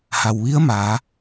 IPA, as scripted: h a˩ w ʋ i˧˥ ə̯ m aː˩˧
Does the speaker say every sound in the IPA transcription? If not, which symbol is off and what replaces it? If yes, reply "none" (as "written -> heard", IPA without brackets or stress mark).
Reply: none